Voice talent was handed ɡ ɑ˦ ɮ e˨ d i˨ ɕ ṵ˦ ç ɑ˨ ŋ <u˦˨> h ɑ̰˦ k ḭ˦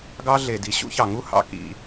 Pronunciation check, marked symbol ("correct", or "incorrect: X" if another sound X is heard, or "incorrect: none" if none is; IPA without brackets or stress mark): incorrect: u˦